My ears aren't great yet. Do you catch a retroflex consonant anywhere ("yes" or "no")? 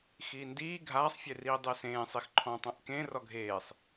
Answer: no